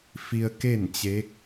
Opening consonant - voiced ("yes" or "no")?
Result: no